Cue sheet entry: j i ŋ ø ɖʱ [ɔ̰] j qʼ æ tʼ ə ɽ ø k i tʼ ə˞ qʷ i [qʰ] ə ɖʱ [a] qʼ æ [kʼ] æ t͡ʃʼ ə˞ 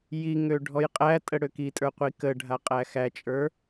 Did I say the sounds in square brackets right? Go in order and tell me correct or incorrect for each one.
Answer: incorrect: ɔ, incorrect: k, correct, incorrect: x

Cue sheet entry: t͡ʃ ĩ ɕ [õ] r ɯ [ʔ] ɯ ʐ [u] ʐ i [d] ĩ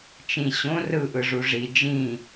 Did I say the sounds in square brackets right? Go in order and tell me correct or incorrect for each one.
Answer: correct, correct, correct, incorrect: d͡ʒ

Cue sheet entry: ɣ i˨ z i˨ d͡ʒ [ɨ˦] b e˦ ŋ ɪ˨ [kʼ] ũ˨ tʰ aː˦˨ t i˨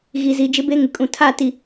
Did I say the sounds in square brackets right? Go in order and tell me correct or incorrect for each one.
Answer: incorrect: ɪ˦, correct

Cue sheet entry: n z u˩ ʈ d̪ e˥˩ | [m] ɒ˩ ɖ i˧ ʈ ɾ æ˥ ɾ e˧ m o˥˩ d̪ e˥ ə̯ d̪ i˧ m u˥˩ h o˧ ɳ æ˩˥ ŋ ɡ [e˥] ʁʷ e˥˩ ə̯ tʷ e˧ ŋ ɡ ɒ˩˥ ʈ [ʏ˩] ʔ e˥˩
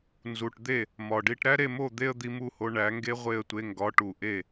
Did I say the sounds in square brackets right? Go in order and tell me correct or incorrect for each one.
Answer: correct, correct, incorrect: u˩

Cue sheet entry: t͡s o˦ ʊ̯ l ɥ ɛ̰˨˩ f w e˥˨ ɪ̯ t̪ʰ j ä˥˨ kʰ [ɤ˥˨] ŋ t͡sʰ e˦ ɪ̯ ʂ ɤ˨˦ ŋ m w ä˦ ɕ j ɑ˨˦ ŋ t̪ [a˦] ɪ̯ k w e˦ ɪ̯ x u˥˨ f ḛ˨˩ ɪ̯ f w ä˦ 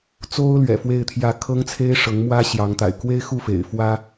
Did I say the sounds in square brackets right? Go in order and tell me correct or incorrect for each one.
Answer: incorrect: ɤ˦, incorrect: a̰˨˩

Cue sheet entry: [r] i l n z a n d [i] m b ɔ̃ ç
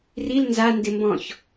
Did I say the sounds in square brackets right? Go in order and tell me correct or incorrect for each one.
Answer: correct, incorrect: ɪ

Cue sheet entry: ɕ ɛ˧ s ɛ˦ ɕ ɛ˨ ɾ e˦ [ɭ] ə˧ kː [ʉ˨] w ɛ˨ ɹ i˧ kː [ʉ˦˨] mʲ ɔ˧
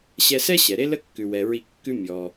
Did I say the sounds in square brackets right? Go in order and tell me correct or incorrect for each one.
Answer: incorrect: l, correct, incorrect: ʉ˦

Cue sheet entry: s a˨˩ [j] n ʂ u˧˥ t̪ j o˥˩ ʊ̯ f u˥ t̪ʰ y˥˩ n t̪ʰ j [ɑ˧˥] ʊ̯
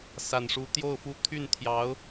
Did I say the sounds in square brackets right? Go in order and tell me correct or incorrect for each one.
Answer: incorrect: none, correct

